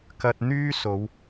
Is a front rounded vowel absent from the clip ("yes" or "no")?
no